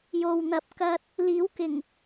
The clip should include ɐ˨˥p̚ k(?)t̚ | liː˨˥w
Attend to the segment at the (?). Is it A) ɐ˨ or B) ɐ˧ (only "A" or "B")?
B